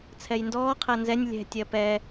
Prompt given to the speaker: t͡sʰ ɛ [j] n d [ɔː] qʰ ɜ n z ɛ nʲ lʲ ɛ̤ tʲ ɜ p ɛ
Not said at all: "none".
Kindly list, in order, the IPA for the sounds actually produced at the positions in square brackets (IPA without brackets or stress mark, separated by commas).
j, ɔː